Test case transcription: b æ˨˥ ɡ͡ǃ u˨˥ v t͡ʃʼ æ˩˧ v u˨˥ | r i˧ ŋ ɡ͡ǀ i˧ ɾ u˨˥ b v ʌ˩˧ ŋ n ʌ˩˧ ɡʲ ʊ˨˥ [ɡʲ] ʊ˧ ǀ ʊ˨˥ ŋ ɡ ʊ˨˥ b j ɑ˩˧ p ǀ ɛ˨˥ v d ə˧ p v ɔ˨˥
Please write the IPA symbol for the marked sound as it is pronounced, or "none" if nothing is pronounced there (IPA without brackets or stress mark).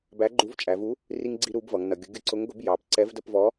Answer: ɡʲ